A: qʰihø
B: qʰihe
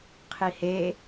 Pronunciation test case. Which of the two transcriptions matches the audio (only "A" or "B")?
B